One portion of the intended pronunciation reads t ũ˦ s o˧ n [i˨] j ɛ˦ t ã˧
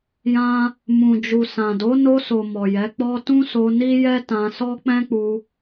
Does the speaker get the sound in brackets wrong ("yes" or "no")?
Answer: yes